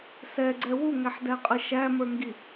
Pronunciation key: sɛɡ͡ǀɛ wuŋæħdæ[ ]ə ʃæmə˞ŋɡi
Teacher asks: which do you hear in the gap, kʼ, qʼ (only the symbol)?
qʼ